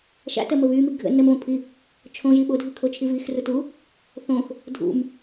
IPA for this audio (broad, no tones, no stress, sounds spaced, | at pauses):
ʃ a̰ t ɜ m ə β y m i ɡʱ ə̰ n ə m v ə̃ pʰ i | t͡ʃʰ õ ʒ i ɓ o dʱ y kʰ o t͡ʃʰ i v i x r u t u | θ õ x | dʱ ṵ m